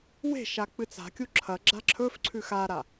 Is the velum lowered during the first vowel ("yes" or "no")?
no